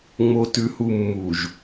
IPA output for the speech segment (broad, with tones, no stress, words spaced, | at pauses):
ŋ͡mo˨tʉ˨hu˨ mːu˨ʒ